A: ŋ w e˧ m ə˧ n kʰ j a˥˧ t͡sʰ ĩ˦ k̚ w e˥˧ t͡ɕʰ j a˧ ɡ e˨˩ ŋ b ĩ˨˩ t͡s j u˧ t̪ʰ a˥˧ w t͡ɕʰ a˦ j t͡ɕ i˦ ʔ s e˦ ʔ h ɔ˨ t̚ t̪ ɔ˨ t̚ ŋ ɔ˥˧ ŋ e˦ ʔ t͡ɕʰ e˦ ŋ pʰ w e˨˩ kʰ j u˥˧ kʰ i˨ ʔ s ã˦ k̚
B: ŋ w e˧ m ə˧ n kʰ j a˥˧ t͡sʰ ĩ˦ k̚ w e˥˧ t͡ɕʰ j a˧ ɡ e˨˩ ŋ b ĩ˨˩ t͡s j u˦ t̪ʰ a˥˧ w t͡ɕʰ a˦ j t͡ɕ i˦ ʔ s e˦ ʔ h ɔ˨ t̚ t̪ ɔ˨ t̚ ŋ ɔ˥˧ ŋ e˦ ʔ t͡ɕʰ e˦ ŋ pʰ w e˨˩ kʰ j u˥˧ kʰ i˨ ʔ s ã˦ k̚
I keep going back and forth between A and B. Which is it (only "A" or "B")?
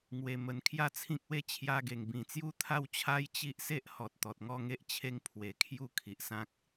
B